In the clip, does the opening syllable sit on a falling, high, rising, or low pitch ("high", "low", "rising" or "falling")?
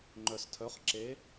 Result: low